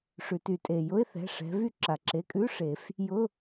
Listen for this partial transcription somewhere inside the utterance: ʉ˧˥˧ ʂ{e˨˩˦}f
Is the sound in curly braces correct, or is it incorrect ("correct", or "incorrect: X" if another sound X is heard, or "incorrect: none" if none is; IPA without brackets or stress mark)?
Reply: correct